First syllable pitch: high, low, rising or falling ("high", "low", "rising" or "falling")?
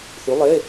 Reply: rising